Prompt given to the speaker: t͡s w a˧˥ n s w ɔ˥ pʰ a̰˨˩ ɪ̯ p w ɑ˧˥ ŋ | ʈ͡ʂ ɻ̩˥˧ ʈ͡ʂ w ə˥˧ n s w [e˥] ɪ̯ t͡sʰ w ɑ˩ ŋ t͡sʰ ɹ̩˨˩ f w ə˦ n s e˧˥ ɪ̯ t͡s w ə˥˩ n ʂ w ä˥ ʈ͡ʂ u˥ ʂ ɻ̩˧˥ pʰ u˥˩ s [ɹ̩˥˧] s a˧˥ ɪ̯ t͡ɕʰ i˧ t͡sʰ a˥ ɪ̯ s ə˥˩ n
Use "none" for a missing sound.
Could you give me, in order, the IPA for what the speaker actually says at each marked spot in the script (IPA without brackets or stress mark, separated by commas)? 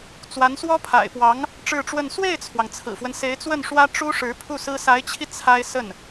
e˥˩, ɹ̩˥